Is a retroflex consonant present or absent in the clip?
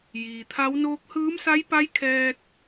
absent